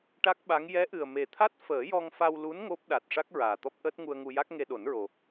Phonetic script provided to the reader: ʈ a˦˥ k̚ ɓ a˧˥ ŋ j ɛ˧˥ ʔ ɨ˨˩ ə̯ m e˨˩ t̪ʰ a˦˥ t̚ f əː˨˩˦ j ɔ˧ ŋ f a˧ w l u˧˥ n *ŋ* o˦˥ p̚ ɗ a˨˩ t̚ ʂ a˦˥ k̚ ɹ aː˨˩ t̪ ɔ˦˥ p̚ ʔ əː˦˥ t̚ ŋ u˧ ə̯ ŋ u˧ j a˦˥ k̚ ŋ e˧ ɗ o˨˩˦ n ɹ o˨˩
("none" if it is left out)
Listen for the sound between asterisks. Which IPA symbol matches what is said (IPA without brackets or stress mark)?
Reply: ŋ